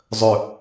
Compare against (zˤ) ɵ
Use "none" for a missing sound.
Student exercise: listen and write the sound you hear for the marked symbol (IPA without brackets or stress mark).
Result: zˤ